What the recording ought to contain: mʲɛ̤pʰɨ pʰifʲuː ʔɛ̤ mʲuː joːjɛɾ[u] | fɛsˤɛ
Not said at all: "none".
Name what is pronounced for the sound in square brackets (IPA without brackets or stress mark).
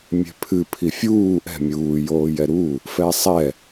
u